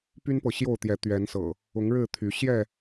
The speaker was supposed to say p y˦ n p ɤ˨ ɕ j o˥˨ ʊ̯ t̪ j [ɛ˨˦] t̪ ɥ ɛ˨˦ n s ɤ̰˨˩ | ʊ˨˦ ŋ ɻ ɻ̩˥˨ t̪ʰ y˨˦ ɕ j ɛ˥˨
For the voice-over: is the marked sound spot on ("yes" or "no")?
yes